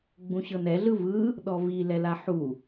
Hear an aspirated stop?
no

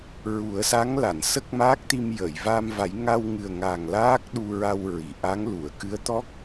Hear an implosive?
yes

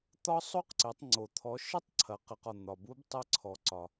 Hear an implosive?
no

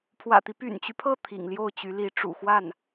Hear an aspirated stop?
yes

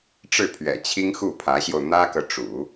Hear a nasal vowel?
no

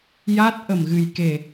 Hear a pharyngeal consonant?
no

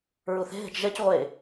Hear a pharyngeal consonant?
no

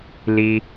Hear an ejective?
no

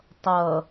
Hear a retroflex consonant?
no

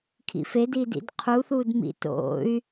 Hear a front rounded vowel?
yes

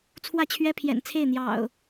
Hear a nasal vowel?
no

